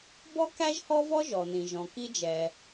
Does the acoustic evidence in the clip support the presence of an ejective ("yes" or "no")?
no